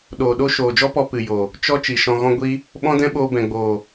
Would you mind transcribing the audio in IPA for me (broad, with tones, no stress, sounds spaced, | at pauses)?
ɗ oː˨ ɗ o˦ ʃ oː˨ d͡ʒ ɔ˦ p ɔ˧ p ɨ˨ j o˨ | t͡ʃ ɔ˦ t͡ʃ i˨ ʃ ɔ̃˧ ɣ ɔ̃˦ ɡʷ i˦ | ɓ ɔ̃˦ d ɛ̃˦ ɓ oː˧ b ɛ̃˨ ɡ͡b oː˨